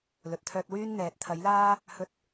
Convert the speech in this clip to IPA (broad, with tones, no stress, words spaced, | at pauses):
lɵ˨t̚t̪ʰœː˧t̚wyː˥nn̪ɛː˨˥t̚ t̪ʰɐ˨˥jlaː˥ | hɵ˥t̚